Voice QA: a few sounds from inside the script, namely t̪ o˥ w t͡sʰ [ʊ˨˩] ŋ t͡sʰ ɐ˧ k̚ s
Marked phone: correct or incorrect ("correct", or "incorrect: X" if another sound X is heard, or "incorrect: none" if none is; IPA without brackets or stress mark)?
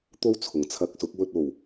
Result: correct